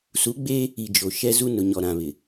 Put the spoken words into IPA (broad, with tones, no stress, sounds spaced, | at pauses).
s u˨˦ ɡ͡b eː˦ | i˨ d͡ʒ o˨ ʃ ɛ˦ z u˦ n ʊ˨ ɲ ɔ˨ ɾ ã˨ β ɪ˨